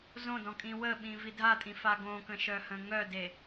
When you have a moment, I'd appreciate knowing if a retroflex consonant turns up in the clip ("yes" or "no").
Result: no